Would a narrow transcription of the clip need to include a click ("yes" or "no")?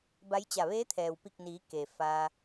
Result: no